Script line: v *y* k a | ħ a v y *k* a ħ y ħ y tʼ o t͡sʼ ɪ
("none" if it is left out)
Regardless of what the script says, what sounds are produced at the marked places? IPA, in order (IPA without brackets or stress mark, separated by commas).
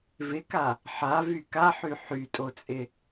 ɪ, k